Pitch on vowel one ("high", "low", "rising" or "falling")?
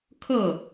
falling